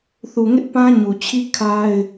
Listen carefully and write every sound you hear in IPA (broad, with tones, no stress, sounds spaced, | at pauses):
θ u˨ ŋ ɪ˦ ʔ p ã˦ ɲ u˨ t͡ɕʰ i˦ kʰ a˦ ɪ̯